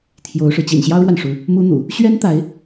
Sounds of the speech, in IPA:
t̪ʰjo˧˥ʊ̯ʂɻ̩˧ t͡ɕḭ˨˩nɕjɑ˥ʊ̯ɻwa˨n ʂu˧˥ | mu˥n̪ṵ˨˩˦ | ɕɥɛ˥nt̪a˧˥ɪ̯

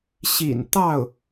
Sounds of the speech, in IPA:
ɕḭ˨˩n t̪ɑ˥˩ʊ̯

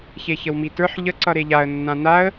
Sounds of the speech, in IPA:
çeçəwmitə˞ħ ʎə ǀʌɾeʎaə̯ nːãnaə̯

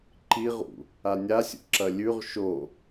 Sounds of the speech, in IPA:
ǃiʁṵ | anʲasʲṵ ǁɐlʲʉʁ ʃo

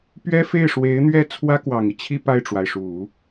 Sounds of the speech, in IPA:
pɥɛ˥fe˥˩ɪ̯ ʂwe˧˥ɪ̯n̪ɥɛ˥ t͡sʰwä˥kwɑ˨˩ŋi˦t͡ɕʰi˥˧ pa˥˩ɪ̯ʈ͡ʂwa˩ɪ̯ʂu˨˩˦

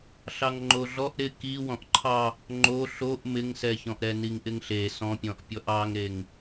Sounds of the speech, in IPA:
ɬɑŋŋ͡ǃoɮɔʔ ɾɪ ki wɔ̃ʔǃʰɑ | ŋ͡ǃo ɬoʔ mɪŋsɛçɔ̃ʔ ɾɛniŋʔɪŋɬe sɔ̃pʲɔ̃ʔpʲɔʔ ɑŋɾeŋ

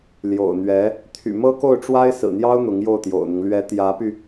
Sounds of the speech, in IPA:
ljo̰˨˩ʊ̯n̪ɥɛ˧˥ | t̪ʰy̰˨˩mɤ˥ko˥˩ʊ̯ʈ͡ʂwa˥ɪ̯ sɹ̩˨˩n̪jɑ˥ʊ̯ n̪ʊ˧˥ŋjo˥˩ʊ̯t̪jo̰˨˩ʊ̯n̪ʊ˦ŋ lɥɛ˧˥t̪jä˧˥py˧

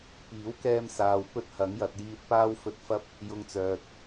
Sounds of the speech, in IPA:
piː˨˥wkɛː˧msaː˨w pɵ˥t̚hɐ˨˥ŋjɐ˨t̚jiː˧t̚ paː˥wfɵ˧t̚fɐ˥p̚ | jʊ˧ŋt͡sœː˨t̚

